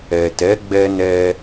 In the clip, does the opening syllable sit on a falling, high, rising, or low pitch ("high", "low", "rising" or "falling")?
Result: low